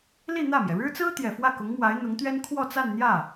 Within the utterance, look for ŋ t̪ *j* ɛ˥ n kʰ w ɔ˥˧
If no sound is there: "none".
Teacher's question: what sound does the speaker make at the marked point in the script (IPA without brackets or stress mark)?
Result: ɥ